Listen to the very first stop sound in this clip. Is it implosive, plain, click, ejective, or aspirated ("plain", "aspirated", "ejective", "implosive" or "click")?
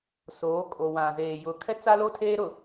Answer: ejective